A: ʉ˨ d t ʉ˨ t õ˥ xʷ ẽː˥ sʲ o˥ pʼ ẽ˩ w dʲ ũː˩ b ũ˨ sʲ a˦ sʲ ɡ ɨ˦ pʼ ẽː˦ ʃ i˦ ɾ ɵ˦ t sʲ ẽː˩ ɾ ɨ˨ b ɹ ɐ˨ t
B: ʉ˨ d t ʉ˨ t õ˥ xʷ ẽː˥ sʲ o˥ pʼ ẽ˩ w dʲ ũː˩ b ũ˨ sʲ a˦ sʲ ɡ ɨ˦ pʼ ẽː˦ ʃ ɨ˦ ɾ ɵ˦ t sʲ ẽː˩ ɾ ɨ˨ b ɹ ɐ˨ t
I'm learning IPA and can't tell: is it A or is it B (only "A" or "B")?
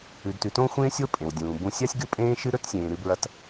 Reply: B